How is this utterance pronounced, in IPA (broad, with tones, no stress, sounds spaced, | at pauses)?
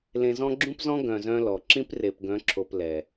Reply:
l ẽ˨ z ɔ̃˦ ɡ͡ǁ ũ˦ p z ɔ̃˦ ɡ œ̃˨ z œ̃˦ l ɔ˨ ǁ ĩ˦ p r e˨ p ɡ œ̃˨˦ ǁʰ o˨ p l ɛ˨